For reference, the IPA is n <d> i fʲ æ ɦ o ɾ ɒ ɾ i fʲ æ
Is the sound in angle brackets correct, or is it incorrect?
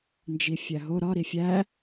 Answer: incorrect